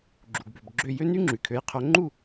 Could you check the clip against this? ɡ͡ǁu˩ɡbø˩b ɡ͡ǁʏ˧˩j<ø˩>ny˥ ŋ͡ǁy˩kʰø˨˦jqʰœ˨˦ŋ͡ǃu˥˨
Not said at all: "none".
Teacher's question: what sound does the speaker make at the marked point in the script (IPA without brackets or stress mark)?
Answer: ø˥